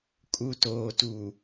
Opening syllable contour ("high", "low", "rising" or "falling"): low